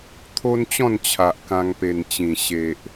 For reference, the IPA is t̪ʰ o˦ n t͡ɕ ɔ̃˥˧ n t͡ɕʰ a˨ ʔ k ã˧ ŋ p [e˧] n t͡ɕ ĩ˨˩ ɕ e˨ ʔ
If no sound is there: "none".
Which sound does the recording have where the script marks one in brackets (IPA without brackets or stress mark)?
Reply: e˨˩